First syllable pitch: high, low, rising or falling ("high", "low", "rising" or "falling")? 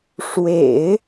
low